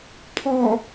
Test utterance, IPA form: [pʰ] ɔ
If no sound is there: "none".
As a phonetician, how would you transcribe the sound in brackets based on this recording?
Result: pʰ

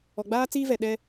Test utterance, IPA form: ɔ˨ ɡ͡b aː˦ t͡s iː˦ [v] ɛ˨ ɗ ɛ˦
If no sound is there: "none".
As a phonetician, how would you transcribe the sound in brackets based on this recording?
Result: v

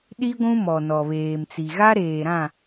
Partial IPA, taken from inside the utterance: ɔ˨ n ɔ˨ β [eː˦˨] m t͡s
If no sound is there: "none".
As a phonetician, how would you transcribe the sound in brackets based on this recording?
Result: eː˨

